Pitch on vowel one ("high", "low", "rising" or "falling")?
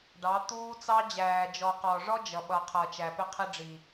rising